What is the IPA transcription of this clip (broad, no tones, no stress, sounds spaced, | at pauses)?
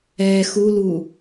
ɛ x u l u